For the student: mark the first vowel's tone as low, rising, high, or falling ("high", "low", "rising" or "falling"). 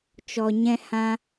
low